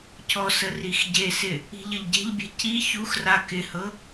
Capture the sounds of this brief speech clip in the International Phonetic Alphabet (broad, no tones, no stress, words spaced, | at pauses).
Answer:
cɔsə rixɟesɪ | i̤ʎəʎɟe̤ʎbʲe̤ ci çuxra kɪhɤ